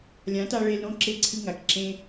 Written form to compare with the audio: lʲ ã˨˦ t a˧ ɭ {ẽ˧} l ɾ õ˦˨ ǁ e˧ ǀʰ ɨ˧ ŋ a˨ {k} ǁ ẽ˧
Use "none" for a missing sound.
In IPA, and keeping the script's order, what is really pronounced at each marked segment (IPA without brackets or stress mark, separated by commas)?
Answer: e˧, k